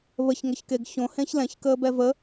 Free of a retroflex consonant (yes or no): yes